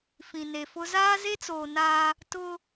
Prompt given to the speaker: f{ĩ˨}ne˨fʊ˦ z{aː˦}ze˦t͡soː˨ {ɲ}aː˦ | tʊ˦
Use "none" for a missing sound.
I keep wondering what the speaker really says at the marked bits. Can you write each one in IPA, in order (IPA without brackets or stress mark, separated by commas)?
ĩ˨, aː˦, n